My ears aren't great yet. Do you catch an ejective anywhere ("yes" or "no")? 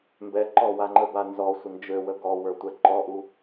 no